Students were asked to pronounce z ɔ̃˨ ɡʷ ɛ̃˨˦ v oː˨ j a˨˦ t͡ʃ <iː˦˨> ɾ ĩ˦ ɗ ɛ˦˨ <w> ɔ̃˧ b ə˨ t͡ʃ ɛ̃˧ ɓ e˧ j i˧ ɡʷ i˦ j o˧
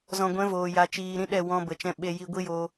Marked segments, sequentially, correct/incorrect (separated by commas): incorrect, correct